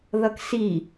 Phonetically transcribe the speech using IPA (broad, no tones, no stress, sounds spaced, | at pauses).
ð ʌ k s i